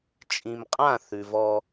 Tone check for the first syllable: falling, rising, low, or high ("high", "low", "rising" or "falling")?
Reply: low